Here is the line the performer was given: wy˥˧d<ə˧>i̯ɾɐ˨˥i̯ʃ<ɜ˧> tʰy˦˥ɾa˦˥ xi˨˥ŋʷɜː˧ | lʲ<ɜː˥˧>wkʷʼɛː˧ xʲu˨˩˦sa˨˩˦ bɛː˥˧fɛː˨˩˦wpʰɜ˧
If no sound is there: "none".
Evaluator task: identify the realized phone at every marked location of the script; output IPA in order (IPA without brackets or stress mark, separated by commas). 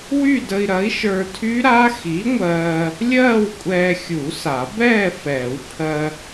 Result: ə˧, ə˞˧, ɜː˥˧